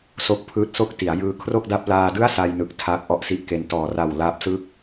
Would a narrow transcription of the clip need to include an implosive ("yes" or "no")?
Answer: no